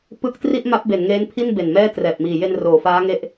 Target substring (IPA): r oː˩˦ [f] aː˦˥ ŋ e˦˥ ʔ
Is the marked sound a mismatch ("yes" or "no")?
no